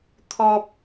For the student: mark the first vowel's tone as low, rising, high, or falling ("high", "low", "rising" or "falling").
low